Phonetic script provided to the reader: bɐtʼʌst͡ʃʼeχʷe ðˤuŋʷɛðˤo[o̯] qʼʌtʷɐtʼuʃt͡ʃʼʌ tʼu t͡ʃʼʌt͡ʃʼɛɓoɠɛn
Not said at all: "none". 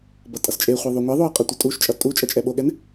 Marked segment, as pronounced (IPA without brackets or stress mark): ɐ̯